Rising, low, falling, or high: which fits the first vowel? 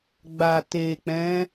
low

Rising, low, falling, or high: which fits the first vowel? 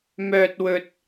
low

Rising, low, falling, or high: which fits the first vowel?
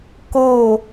falling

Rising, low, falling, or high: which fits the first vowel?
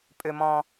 high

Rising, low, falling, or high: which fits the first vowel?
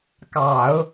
low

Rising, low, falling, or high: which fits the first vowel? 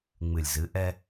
low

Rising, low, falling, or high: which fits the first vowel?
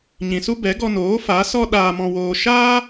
low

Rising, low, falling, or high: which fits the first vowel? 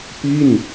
falling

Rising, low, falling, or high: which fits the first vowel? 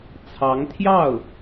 rising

